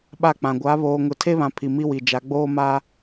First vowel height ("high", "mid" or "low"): low